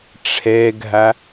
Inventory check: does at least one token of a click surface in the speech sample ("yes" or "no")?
no